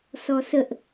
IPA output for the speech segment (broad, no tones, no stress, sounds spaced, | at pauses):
s ɔ s ə ʔ